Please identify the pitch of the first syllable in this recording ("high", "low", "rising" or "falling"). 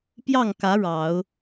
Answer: falling